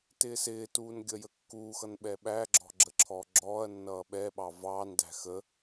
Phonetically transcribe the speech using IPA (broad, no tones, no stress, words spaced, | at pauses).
tɪːsɪːtuːn ɡʲʌjəkːuːxʌn ɓɛɓæɡ͡ǁɔ̤ ɡ͡ǁəǁʰɔːɡ͡ǁɔːɐ̯nːʌː ɓɛɓɑ vɑːndæ̤ xə